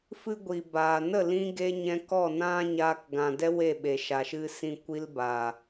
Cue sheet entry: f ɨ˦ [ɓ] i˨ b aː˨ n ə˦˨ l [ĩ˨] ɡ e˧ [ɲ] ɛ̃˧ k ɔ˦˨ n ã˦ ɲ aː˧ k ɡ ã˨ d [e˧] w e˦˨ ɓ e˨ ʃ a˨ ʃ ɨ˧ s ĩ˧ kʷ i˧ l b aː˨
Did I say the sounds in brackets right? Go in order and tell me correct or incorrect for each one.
incorrect, incorrect, correct, incorrect

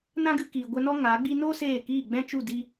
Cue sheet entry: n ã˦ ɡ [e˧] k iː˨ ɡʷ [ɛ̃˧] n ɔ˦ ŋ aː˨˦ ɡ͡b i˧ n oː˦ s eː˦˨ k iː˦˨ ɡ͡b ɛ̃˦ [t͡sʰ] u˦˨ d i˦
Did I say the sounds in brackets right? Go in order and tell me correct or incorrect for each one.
incorrect, incorrect, incorrect

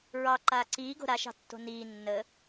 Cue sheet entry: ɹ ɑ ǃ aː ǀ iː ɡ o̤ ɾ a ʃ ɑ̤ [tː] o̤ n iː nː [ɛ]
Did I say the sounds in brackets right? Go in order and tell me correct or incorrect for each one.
correct, incorrect

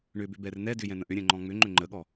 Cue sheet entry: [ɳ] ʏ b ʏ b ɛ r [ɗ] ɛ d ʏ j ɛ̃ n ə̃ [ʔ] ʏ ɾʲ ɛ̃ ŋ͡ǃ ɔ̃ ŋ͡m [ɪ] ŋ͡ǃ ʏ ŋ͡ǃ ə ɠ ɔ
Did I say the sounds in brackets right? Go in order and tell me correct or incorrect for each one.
correct, incorrect, correct, incorrect

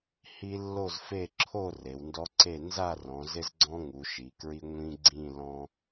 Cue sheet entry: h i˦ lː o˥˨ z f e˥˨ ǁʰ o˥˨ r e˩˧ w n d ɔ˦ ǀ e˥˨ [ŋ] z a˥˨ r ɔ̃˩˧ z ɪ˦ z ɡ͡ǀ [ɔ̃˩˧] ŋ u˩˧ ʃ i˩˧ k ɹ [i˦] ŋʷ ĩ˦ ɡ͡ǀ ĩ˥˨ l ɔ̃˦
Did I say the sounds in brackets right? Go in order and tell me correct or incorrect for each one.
incorrect, incorrect, correct

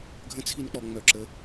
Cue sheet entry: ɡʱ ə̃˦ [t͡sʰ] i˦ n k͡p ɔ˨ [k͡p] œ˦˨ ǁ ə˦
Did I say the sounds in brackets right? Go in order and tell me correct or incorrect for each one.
correct, incorrect

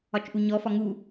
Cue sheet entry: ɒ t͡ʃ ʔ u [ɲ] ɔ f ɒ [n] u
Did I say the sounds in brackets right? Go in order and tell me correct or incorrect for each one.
correct, incorrect

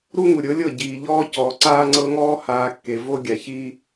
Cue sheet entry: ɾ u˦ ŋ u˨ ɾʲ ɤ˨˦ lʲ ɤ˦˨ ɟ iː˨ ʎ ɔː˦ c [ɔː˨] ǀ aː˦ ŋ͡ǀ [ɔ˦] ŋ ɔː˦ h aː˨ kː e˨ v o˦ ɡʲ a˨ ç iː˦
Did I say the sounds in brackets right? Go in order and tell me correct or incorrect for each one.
correct, incorrect

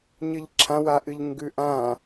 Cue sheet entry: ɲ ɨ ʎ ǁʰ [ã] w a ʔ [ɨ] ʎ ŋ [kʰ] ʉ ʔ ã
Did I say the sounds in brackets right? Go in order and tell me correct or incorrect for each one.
correct, correct, incorrect

